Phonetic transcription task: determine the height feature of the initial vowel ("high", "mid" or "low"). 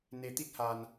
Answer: mid